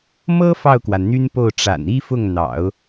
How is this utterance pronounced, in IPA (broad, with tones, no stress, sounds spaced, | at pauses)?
m ɤ˥ f ɑ˥˩ ʊ̯ k w a˩ n n̪ y˥ n p o˥˩ ʊ̯ ʈ͡ʂ a̰˨˩ n i˥ f ʊ˥˩ ŋ n̪ ɑ̰˨˩˦ ʊ̯